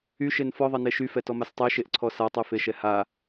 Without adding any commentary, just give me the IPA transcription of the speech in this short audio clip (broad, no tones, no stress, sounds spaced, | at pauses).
y ʃ e n f ɔ ðˤ e n e ʃ y f ɛ t ɔ m a s tˤ e ʃ e ʔ ǀʰ ɔ s a tˤ y f e ʃ ɛ h a